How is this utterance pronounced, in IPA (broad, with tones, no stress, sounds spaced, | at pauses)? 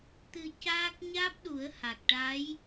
t̪ ɨ˧ c aː˦˥ k̚ ɲ aː˦˥ p̚ ɗ u˨˩˦ ə̯ h a˨˩ k̚ ʈ a˧˥ j